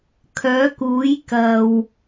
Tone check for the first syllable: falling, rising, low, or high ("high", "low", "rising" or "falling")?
rising